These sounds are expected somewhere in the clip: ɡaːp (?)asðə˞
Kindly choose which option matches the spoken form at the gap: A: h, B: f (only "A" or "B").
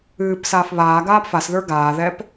B